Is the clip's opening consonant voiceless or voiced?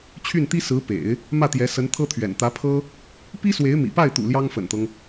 voiceless